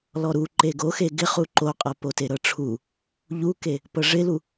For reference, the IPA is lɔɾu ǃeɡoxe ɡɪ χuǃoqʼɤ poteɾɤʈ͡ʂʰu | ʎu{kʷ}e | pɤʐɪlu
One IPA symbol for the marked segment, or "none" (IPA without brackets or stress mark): k